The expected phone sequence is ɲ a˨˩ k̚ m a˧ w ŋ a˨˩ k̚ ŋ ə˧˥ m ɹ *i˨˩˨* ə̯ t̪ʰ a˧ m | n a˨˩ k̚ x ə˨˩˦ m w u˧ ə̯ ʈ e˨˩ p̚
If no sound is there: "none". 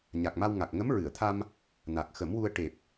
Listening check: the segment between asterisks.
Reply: ɨ˨˩˨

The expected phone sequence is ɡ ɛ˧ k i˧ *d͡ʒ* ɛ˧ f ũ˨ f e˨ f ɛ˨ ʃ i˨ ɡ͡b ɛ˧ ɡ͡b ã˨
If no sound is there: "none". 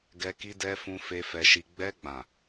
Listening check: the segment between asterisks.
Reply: d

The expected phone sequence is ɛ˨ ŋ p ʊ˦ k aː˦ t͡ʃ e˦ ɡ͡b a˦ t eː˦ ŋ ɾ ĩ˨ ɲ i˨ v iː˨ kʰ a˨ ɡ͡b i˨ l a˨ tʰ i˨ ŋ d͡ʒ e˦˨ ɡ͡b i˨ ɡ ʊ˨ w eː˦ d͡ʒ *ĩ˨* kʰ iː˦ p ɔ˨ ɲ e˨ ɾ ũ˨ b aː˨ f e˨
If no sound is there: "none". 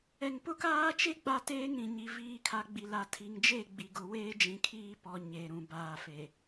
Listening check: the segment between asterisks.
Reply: ĩ˨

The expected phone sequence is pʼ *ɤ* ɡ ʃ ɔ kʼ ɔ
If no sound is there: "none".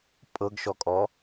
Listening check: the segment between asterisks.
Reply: ɤ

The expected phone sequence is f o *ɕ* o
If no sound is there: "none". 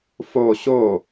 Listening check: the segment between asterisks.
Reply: ɕ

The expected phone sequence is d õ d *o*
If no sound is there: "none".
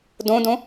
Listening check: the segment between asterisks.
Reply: õ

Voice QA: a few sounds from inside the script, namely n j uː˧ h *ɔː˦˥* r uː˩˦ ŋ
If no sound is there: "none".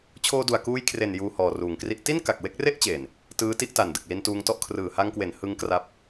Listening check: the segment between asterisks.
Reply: ɔː˨˩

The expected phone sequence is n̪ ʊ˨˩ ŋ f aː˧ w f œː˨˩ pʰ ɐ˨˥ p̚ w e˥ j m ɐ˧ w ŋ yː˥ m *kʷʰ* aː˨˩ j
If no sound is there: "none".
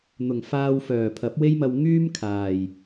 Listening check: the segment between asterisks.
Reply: kʰ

